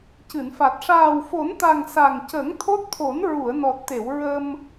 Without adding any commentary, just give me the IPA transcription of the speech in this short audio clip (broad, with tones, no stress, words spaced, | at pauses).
cɨ˨˩˨nfa˨˩t̚ ʂaː˨˩wfo˨˩˦nt̪a˨˩ŋ sa˨˩ŋcə˨˩˦ŋ t̪ʰo˦˥t̚t̪ʰo˨˩˦n ɹu˨˩˨ə̯nɔ˨˩t̚t̪e˨˩˨w ɹə˧m